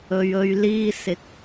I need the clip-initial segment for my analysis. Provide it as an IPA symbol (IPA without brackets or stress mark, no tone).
ɵ